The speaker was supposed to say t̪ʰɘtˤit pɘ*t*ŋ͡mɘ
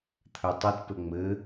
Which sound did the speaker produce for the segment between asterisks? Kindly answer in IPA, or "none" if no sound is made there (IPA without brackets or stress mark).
none